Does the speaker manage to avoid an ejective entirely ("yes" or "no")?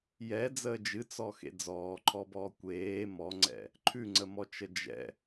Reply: yes